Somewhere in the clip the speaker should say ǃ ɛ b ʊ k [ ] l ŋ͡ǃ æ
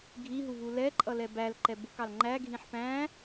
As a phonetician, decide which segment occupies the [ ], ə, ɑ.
ɑ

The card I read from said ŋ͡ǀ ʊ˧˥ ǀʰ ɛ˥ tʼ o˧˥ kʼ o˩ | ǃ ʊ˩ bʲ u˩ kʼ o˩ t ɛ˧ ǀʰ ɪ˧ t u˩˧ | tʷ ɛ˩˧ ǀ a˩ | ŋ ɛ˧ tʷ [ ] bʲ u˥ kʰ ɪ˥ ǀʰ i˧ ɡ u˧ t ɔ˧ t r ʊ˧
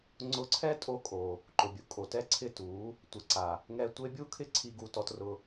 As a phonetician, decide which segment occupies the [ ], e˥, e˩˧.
e˥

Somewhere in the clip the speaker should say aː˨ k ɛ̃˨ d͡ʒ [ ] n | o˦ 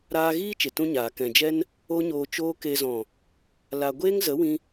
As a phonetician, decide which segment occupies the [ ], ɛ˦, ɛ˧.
ɛ˦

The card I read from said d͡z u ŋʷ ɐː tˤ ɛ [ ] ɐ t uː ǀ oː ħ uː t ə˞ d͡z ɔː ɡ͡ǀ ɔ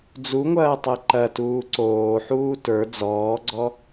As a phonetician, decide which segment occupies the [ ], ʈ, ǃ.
ǃ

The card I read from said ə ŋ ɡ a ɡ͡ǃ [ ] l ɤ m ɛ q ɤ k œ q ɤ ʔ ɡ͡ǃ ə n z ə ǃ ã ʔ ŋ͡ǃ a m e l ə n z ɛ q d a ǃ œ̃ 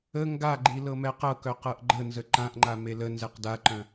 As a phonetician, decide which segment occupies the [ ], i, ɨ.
i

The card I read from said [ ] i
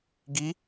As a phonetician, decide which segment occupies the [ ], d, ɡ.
ɡ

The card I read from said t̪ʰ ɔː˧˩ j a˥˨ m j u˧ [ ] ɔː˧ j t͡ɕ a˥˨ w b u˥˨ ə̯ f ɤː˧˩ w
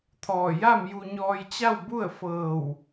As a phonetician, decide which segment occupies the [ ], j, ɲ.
ɲ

